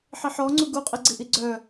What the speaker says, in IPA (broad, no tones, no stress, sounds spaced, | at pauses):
ħ i ħ ɔ ŋ͡ǀ u ɡ u qʼ i ɡ͡ǀ i ʔ i ɡ͡ǀ œ